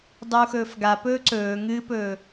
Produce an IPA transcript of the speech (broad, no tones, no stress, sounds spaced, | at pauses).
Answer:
dˤ u x ɵː f ɡ a p ɵː ǀ ɵː ŋ ɨ p ɵː